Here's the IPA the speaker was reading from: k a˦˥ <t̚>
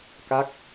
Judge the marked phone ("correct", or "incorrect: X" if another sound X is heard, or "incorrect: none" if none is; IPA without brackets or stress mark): incorrect: k̚